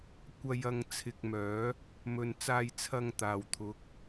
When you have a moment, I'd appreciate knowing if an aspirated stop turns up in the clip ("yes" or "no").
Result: yes